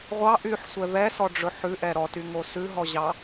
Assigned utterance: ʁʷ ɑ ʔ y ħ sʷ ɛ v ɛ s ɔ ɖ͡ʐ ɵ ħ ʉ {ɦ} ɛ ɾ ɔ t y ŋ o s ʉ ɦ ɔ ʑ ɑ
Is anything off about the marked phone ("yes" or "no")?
yes